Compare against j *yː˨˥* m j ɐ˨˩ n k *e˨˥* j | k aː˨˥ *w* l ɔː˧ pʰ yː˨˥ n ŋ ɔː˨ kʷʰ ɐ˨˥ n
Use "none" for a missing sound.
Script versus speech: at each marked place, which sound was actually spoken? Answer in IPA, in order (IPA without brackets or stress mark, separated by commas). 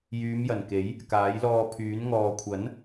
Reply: yː˨˧, e˨˥, j